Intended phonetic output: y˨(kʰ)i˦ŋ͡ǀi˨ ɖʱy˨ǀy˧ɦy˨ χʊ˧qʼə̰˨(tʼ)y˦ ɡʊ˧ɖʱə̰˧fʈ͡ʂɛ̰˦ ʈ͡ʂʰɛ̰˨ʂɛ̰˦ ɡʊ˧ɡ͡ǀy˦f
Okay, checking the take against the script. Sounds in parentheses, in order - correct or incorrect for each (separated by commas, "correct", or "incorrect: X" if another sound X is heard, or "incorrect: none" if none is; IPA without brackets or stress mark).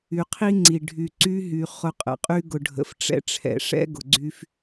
incorrect: qʰ, incorrect: qʼ